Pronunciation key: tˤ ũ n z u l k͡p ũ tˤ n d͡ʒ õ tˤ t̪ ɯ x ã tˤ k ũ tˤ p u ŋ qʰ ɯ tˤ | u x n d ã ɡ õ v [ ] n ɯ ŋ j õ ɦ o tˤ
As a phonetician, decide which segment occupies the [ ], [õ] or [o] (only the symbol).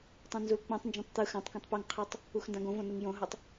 õ